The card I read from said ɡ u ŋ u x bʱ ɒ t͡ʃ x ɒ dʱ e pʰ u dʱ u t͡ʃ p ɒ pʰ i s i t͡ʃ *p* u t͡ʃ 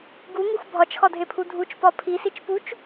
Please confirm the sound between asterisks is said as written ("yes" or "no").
yes